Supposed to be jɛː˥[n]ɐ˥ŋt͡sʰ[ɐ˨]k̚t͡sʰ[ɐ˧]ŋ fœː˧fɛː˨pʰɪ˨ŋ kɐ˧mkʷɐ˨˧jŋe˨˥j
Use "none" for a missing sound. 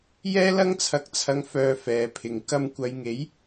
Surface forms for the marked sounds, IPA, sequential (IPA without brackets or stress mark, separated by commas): l, ɐ˨, ɐ˧